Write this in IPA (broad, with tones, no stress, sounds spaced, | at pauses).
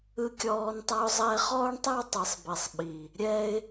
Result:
ɯ˧ kʲ ɔː˧ n tˤ a˧ ʊ̯ zˤ ɛ˧ χ ɔː˦ ɳ tˤ a˦ w tˤ ɯ˨ sˤ b i˨ sˤ ɓ i˨ | ɾʲ ɛ˦ ɪ̯